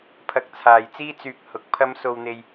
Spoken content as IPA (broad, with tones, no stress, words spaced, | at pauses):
pʰɐ˧k̚t͡sʰaː˨jt͡siː˥ t͡syː˨k̚ hʊ˨˥k̚pʰɐ˥mso˧wn̪e˧j